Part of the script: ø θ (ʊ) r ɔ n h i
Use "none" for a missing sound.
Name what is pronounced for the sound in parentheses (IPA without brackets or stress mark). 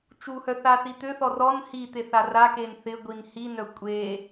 ɔ